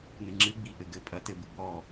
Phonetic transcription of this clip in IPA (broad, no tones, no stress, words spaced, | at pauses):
nɨŋ͡ǁɨ ɡ͡biʔɘɡɘ pʼɐtɘb ɨɡ͡bɔ